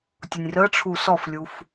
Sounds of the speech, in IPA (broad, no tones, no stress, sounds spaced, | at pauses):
tʲ ʊ nʲ r ə ʈ͡ʂʰ u s ɔ f lʲ u f